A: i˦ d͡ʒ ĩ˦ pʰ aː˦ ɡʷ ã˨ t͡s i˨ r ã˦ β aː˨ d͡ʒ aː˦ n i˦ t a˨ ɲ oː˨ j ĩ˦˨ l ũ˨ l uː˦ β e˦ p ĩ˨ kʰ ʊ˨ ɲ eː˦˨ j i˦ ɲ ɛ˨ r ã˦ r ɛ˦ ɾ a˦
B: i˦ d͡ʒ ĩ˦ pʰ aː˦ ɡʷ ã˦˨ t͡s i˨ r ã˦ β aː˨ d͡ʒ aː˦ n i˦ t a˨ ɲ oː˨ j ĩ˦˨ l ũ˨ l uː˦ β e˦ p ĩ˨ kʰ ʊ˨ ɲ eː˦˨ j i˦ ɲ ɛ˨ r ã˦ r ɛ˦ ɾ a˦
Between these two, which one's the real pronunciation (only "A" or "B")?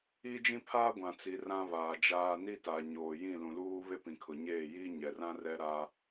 A